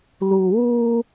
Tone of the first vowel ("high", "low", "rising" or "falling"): low